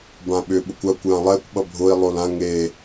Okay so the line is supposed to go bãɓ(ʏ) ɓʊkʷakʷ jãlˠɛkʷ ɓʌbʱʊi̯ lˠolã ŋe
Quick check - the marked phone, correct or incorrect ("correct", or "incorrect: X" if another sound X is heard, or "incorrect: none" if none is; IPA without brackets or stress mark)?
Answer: correct